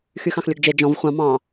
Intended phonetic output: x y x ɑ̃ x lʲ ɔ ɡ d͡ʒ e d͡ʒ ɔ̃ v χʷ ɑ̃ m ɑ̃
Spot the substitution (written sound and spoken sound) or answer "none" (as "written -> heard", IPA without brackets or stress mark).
none